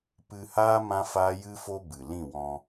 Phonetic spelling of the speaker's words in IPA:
p ɨ˧ h aː˦ m ã˦ f aː˦ j ɨ˦ f o˦ b ɨ˨ l ĩ˦˨ w ɔ̃˧

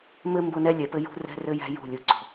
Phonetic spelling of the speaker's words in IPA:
m ɘ˦ m b ʊ˦ n ɛ˦ lʲ ɛ˨ p ɘ˦ j ṳ˦ r ɛ̤˦ r ɘ˦ j æ̤˦ j ṳ˦˨ lʲ u˨ ǀ ɔ̤˨

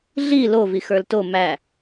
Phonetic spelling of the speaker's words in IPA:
ɮ i l o v i x ə˞ l t o m æ

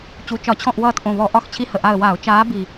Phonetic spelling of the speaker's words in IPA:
t͡ɕ u˨˩ t͡ʃ ɒ˧˩˧ t͡ɕʰ ɔ̃˦˨ ʔ w ʌː˦˨ t ʔ õ˨˩ β ɔ˧˩˧ ʔ ɒ˦˨ x t͡ɕʰ i˦ h ə˨˩ ʔ a˦˨ ə̯ w a˧˩˧ ʊ̯ t͡ʃ aː˨˦ b i˨˩

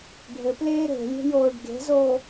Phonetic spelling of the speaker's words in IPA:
ɖʱ ɘ p l eː ɾ e̤ lʲ e̤ j oː ɖ ɡ e̤ z oː

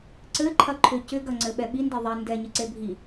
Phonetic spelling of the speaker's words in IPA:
ǀ ɘ ǃʰ ɐ ǃʰ ʏ c ʏ ɡ ɐ ŋ͡ǀ ɘ ɓ ɛ ɓ i n d ɛ ðˤ ɛ n d ɛ ɲ ɘ ǀ e bʱ i

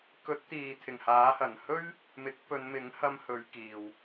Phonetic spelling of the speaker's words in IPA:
k ɵ˨˥ t̚ t̪ iː˨ t̪ʰ ɪ˨˩ ŋ h aː˨˥ h ɐ˨˩ n h ɵ˥ ɥ | m ɪ˨˥ k̚ p ɵ˨˧ n m ɪ˨˥ ŋ h ɐ˧ m h ɵ˨˧ ɥ k iː˨ w

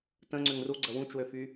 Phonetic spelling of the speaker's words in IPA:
t ə̃ ŋ͡ǀ ʏ ŋ r u ɡ͡ǀ ə w ũ t͡ʃ w ø f y

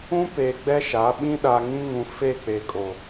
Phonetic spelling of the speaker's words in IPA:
ũ˦ p eː˨ ɡ͡b ɛ˦ ʃ a˨˦ ɓ ĩ˦ ɗ a˨ ŋ ĩ˦ ŋ ũ˨ f e˦˨ k͡p e˨ kʼ o˨

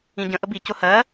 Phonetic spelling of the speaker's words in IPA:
ĩ ɟ ə̃ ʔ ə b i c ʊ h ɜ

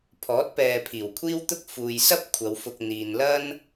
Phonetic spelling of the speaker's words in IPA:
pʰ ɔː˨˥ t̚ p ɛː˨ pʰ iː˨˩ w kʷʰ iː˥ w t̪ ʊ˥ k̚ f uː˨ j s ɐ˥ p̚ kʷʰ ɐ˨˧ w f ʊ˧ k̚ n̪ iː˨ n l ɐ˥ n

